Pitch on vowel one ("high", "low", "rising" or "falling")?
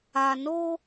low